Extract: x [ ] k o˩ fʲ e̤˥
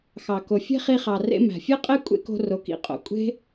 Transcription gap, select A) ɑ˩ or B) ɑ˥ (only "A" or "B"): A